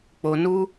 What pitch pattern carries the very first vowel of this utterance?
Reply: low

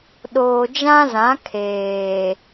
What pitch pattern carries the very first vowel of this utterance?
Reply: low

